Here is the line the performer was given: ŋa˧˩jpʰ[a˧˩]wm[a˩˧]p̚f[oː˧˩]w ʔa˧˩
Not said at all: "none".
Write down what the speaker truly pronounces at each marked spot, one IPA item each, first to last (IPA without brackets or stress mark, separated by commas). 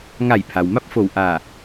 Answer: a˩, a˥˨, o˧˩